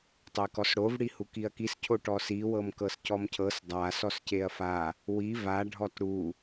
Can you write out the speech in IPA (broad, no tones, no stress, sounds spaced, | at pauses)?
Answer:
tˤ e k ɔ s ɽ o v ɽ i h u k i ɐ̯ k i s cʰ o ʈ ɔ s i w ɤ m k ɤ s c ɔ m cʰ ɤ s dˤ a s ɔ s c e ɐ̯ f a | w i v a ɖʱ ɔ t ɽ u